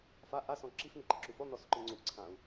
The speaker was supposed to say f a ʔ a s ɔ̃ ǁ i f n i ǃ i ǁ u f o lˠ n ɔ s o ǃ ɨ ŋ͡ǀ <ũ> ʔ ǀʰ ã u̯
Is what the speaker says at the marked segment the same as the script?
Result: no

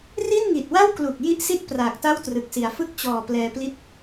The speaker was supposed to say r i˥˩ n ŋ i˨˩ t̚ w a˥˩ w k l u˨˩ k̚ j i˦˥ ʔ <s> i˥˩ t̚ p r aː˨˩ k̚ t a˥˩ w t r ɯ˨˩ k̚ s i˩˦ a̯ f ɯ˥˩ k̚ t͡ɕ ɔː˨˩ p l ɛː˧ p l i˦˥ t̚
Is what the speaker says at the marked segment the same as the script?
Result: yes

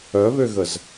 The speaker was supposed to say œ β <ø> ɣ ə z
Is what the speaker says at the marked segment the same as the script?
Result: yes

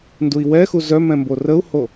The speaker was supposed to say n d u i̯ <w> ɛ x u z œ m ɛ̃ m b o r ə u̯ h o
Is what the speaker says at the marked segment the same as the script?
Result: yes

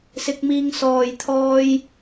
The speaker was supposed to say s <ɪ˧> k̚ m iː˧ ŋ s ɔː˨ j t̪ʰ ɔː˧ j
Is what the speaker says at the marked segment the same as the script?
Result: yes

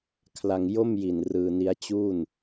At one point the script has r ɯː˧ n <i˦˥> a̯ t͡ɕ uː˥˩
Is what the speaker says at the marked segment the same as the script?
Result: yes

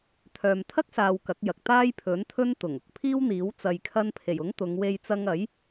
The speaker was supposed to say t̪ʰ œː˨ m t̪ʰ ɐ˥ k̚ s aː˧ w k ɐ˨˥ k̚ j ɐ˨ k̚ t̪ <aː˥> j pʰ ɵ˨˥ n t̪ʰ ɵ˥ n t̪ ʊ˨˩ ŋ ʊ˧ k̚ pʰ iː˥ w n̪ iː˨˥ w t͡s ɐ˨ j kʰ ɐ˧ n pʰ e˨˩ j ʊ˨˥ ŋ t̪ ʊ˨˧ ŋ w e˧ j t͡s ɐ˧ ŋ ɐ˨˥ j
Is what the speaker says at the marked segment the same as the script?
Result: yes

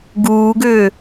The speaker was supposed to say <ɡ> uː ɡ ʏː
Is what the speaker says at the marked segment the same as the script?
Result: yes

